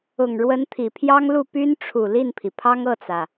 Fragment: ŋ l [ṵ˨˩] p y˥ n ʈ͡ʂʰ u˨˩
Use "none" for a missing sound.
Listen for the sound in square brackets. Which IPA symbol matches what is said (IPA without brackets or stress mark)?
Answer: u˥˩